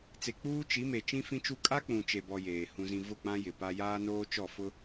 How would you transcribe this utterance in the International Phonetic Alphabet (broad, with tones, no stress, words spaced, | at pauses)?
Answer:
t͡se˨ k͡puː˦t͡ʃi˨˦me˨ t͡ʃĩ˦fĩ˦t͡ʃu˦ kʼa˦k͡pũ˨ t͡ʃe˨bɔ˨ jeː˨ hũ˨zĩ˨ vʊ˦˨k͡pã˦ jɪ˨pa˦ jaː˦noː˦ t͡ʃɔ˦˨ fʊ˦